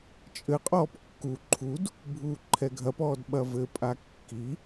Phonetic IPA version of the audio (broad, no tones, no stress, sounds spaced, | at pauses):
t͡ʃʼ ɘ qʼ ɔː p kː u ǃʰ u d | bʱ uː ǃʰ ɛ ɡʱ ɐ p ɔː d ɓ ɐ v ɘ pʼ a kː i